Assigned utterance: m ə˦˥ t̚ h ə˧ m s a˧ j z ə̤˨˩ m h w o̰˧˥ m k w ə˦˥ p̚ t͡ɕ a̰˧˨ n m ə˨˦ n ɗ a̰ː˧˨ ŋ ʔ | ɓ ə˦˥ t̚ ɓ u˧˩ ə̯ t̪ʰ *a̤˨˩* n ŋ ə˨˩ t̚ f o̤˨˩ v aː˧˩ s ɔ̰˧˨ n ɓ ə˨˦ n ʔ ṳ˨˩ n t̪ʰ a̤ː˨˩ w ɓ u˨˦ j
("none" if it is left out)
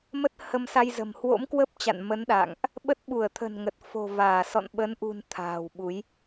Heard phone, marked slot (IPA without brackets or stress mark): ə̤˨˩